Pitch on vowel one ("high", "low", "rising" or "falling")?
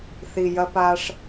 low